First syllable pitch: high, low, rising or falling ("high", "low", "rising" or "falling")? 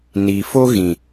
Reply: low